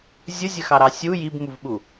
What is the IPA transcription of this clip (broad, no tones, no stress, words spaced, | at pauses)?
zʲʊzʲəxɑɾɑ sʲu jibmuvɓu